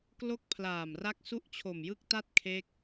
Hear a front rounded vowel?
no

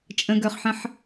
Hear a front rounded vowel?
yes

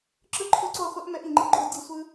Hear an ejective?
no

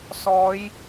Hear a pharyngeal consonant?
no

